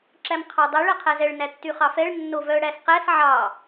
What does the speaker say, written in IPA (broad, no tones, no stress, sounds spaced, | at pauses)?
ǁ æ m qʰ ɑ dˤ ɛ ɭ æ qʰ æ z ɛ ɭ n æ tː y χ ɑ f ɛ ɭ nː o v œ ɽ æ s q æ s ʕ ɑ